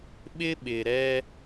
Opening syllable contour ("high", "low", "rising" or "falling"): high